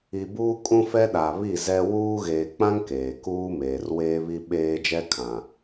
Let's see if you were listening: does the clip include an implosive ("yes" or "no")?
yes